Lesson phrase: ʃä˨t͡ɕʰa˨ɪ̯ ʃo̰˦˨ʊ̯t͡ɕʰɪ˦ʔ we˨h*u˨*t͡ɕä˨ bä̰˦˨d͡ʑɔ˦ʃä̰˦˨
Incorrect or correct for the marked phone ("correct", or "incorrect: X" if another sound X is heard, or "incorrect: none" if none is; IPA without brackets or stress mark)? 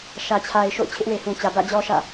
incorrect: ũ˨